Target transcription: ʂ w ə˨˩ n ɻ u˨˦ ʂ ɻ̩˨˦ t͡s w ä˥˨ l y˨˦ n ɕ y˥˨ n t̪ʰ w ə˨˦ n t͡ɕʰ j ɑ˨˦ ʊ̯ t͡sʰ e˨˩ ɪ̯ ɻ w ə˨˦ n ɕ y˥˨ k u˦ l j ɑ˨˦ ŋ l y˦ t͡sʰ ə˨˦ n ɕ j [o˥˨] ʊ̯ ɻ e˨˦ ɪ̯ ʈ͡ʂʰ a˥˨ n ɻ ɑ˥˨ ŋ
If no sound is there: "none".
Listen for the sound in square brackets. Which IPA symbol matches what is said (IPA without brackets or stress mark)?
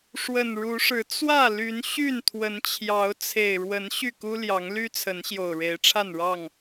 o˨˩